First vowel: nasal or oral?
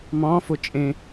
nasal